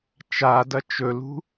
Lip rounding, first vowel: unrounded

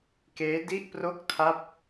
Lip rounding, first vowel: unrounded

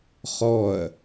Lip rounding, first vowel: rounded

